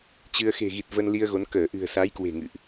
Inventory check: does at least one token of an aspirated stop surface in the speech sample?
no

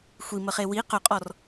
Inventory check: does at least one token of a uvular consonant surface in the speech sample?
yes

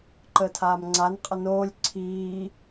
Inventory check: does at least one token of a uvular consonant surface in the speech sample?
yes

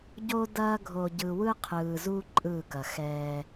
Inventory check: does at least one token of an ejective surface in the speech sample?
yes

